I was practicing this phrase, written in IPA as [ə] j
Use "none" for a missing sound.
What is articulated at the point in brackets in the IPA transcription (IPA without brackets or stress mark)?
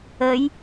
ə